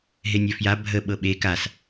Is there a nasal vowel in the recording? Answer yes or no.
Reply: no